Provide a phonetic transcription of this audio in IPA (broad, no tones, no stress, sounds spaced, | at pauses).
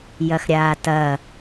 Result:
j ɐ x ɾʲ aː t ɐ